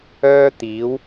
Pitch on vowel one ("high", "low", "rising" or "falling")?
high